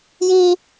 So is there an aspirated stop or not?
no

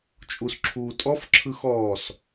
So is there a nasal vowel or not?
no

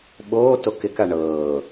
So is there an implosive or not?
yes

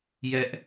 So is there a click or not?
no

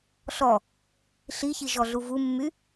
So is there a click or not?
no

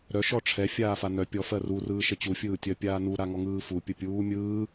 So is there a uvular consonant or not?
no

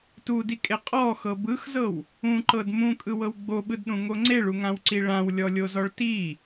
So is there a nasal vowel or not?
yes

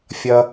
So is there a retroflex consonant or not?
no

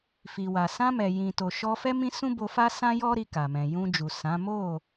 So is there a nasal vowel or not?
yes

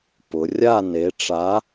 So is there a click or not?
no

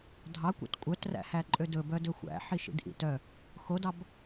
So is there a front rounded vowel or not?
yes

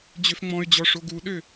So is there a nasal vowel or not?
yes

